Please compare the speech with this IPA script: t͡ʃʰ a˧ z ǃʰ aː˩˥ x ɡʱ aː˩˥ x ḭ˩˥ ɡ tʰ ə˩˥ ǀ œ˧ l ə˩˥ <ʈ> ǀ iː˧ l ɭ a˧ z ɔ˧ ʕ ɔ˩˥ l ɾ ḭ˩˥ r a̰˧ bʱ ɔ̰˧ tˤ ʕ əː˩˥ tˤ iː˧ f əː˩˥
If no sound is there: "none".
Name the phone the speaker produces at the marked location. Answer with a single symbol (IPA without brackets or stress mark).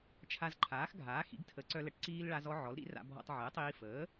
ʈ